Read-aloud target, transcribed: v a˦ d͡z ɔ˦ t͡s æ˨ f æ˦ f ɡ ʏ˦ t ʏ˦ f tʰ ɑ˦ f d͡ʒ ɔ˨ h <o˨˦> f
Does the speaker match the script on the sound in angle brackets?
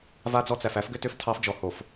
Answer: no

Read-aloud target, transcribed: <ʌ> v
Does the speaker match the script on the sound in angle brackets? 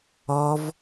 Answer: no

